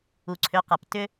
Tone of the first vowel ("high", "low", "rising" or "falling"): low